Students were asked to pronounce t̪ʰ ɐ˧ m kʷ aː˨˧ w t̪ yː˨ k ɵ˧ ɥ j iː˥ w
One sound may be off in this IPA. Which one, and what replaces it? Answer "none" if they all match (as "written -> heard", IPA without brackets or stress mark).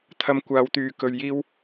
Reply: none